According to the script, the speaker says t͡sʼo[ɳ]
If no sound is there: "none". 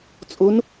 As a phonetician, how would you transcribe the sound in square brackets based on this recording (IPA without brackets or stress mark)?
n